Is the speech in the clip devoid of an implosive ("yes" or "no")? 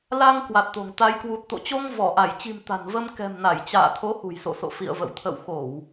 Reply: yes